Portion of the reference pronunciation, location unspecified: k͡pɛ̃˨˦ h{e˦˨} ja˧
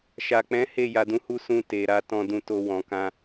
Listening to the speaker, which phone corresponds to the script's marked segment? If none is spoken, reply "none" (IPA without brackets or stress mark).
e˦˨